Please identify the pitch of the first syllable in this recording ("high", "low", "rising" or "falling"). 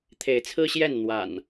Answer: rising